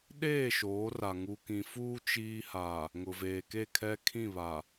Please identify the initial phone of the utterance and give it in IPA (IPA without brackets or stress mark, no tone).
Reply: ɗ